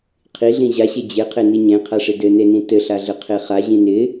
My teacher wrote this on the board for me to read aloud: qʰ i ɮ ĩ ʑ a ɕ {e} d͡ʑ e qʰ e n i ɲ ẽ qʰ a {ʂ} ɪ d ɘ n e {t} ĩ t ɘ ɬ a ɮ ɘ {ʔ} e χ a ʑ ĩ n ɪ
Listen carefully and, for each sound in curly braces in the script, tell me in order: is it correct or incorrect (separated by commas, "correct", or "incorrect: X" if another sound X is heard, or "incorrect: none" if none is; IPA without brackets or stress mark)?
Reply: correct, correct, incorrect: n, incorrect: qʰ